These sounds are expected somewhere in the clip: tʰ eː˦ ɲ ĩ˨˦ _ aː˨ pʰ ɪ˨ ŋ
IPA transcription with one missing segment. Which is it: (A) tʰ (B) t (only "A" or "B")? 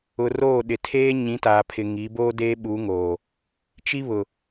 B